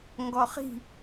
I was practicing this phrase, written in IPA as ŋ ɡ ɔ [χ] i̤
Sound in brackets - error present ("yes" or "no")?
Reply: no